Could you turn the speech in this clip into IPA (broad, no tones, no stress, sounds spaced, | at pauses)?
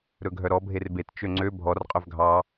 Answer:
ɾ ɵ ɡʱ œ ɾ ɔ bʱ e r b e t t͡ʃ ø ŋ͡ǀ ø bʱ ɔ r qʼ œ v ɡʱ ɑ